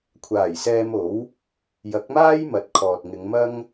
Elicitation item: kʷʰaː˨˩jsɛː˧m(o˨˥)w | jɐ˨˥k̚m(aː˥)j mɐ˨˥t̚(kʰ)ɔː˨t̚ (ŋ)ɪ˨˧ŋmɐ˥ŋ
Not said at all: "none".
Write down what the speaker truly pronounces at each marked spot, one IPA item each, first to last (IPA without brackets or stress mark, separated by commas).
o˨˥, aː˥, kʰ, ŋ